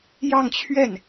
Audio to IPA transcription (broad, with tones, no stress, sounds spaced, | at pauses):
j ɑ˥˧ ŋ t͡ɕʰ ɥ ɛ˥˩ n